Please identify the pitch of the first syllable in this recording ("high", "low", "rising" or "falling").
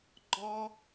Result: high